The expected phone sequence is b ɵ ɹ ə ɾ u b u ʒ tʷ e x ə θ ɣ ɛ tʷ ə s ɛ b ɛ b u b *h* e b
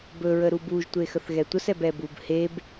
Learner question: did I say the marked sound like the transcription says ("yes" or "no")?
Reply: yes